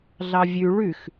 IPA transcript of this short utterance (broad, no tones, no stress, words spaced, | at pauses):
ɮɑvʲʉ ɭʉx